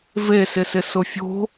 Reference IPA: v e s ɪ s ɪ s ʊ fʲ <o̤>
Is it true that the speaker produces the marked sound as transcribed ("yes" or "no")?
yes